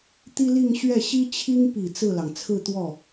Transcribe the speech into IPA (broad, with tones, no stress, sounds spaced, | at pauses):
t̪ i˥ l i˥˧ ŋ ɕ ɥ ɛ˥˩ ɕ i˥ t͡ɕʰ i˥ ŋ p i˨˩ t͡s ɹ̩˥˩ l ɑ˩ ŋ t͡sʰ ɹ̩˥˧ t̪ w ɔ˥˩